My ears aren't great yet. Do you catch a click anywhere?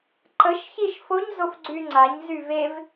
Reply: yes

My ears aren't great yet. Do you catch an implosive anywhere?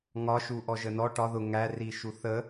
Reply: no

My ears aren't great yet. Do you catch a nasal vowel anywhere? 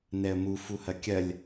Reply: no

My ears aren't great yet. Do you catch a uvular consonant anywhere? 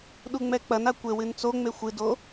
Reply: no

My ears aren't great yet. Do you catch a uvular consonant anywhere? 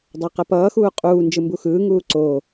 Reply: yes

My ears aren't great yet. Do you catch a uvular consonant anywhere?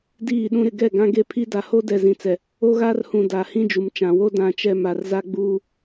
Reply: no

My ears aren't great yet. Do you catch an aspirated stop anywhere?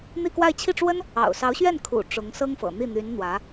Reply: yes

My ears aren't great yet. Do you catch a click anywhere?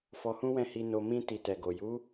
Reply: no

